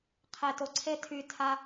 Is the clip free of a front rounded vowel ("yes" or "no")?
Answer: no